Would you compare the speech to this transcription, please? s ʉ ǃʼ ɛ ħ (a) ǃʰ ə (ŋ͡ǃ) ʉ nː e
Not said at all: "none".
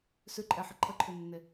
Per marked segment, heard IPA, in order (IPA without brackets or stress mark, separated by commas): ə, ǃʰ